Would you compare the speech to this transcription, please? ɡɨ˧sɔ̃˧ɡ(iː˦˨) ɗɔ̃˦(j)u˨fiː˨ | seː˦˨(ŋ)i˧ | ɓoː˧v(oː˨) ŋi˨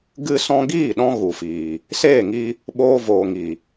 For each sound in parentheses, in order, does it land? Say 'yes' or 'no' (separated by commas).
yes, no, yes, yes